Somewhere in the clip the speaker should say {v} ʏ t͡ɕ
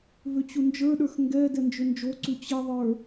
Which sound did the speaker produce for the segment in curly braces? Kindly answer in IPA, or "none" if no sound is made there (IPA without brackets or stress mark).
v